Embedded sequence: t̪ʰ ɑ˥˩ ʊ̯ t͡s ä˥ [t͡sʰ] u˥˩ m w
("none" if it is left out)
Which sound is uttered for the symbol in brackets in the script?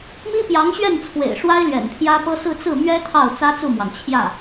t͡s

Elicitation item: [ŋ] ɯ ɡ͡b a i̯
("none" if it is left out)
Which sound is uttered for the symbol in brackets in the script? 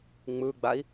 ŋ͡m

